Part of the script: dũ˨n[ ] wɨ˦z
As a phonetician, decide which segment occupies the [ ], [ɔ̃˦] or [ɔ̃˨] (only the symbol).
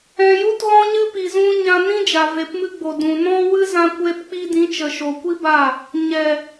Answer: ɔ̃˦